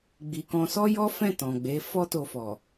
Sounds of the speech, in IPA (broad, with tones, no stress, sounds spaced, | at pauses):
ɡ͡b i˨ k ɔ̃˧ s ɔ˦ j ɔ˦ f ɛ̃˦˨ t ɔ̃˨ ɡ͡b e˨˦ f ɔ˦ t o˧ f ɔ˨